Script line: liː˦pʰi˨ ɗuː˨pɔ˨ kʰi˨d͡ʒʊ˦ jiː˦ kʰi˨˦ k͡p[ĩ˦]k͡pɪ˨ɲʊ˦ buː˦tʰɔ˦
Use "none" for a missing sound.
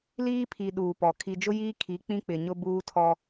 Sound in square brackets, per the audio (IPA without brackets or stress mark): ĩ˦